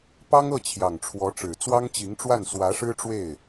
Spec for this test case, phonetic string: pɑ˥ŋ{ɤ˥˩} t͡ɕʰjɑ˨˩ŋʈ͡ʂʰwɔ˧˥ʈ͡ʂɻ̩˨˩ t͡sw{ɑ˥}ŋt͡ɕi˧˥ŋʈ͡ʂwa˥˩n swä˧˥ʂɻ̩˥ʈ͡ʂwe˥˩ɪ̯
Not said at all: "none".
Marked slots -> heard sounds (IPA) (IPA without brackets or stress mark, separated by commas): ɤ˥˩, ɑ˥